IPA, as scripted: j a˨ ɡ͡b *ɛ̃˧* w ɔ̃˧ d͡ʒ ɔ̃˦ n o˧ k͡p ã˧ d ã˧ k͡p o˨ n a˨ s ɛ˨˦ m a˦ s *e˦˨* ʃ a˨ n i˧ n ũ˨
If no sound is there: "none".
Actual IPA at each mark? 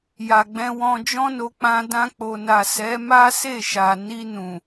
ɛ̃˧, e˦˨

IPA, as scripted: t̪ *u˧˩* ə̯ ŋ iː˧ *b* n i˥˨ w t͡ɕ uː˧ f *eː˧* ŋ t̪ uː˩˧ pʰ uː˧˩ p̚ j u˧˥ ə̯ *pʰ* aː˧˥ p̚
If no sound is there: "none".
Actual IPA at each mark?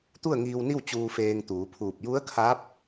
u˥˨, w, eː˧, kʰ

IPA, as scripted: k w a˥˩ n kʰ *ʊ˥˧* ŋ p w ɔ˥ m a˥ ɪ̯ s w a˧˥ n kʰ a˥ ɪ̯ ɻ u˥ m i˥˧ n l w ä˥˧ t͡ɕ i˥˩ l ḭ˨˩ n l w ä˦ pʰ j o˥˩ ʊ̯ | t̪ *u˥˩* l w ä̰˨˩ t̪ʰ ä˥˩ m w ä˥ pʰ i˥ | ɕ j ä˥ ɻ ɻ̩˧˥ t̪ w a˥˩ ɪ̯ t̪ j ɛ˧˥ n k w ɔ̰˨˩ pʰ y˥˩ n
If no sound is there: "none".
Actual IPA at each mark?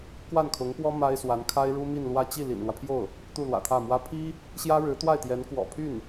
ʊ˧˥, u˥˩

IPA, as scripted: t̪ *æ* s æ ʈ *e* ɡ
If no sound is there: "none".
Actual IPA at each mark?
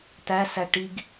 æ, i

